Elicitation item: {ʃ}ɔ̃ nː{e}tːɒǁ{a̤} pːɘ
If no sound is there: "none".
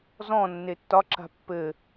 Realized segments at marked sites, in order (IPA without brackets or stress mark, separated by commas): z, e, a̤